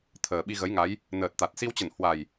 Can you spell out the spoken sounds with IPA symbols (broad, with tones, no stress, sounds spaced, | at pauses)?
t̪ʰ əː˨˩ ɓ i˧ ɣ ə˨˦ j ŋ a˨˦ j | n əː˨˩ t̚ t̪ a˨˩ t̚ s i˧ w t͡ɕ ə˧˩ n h w a˨˩ j